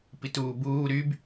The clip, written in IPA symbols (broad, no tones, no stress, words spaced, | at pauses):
pituːbuː ɾyb